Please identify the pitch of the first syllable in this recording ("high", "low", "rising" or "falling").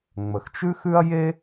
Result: low